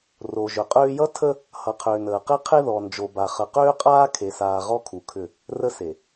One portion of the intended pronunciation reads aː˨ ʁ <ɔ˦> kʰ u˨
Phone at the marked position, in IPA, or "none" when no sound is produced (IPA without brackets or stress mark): ɔ˦